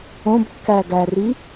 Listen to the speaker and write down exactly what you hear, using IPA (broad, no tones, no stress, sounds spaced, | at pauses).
õ b kː æ ɡ æ r i